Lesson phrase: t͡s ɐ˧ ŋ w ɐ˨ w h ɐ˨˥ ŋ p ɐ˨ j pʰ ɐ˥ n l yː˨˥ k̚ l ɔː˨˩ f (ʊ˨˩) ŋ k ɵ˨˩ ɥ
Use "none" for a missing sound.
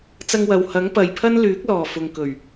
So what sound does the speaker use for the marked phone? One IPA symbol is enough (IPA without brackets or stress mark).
ʊ˨